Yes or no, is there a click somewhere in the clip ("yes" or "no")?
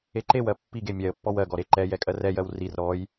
yes